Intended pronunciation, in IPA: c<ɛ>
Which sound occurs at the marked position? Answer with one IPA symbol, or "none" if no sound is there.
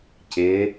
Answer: ɪ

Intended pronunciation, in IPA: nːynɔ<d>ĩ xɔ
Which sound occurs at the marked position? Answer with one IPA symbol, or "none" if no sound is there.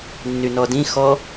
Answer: d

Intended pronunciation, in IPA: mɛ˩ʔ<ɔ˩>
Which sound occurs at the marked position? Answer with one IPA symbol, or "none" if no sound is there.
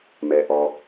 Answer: ɔ˩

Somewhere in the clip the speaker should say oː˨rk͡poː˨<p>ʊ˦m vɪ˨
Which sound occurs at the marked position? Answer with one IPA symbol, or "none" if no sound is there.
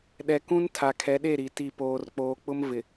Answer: k͡p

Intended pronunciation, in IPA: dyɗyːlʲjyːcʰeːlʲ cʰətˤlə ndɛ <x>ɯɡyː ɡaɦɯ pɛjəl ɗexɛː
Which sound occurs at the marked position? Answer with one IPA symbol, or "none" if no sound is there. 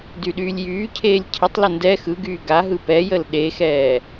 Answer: x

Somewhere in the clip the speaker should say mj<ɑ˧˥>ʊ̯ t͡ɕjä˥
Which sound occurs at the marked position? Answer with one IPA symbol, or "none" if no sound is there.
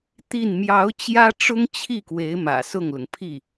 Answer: ɑ˧˥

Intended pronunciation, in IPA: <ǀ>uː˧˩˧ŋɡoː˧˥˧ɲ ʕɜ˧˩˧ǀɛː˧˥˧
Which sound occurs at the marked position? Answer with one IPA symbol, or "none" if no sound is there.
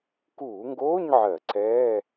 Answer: k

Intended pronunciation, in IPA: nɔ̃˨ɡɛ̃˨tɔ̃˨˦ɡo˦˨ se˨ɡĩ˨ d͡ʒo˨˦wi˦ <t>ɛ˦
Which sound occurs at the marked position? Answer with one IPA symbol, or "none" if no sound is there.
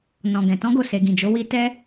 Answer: t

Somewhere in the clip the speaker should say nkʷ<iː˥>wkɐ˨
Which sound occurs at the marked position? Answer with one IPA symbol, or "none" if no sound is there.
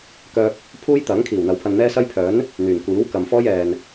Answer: iː˨˥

